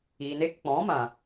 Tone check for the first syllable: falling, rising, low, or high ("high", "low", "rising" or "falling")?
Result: low